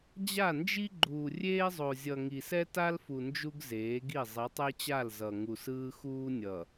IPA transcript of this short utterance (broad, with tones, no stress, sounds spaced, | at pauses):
d͡ʑ a˦˨ n d͡ʒ i˦ ɡ͡ǃ uː˨ rʲ eː˦ zˤ o˨ zʲ ʌ˨ ŋ i˨ s ɛ˦ t a˦ l f u˨ n d͡ʒ u˦ ɡ z eː˨˦ ɡ i˦˨ zˤ i˨˦ tˤ e˦ t͡ɕ a˦˨ l z ʌ˨ ŋ u˨ s ɯː˦ x uː˦ nʲ ʌ˨